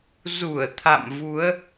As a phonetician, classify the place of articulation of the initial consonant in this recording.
alveolar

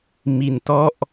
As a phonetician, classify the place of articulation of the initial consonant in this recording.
labial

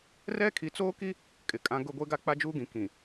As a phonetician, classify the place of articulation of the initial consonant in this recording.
alveolar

